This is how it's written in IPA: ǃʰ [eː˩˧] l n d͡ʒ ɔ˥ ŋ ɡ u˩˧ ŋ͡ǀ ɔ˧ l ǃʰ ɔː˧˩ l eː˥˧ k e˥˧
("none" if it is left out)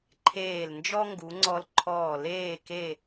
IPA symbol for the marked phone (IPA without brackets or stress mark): eː˧˩